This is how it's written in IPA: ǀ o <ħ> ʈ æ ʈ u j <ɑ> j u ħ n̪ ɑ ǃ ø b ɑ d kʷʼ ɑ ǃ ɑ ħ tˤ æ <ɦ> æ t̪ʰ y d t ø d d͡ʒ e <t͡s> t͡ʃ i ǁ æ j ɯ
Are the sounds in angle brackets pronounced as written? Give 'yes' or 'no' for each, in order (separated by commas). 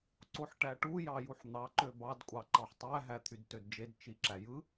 yes, yes, yes, no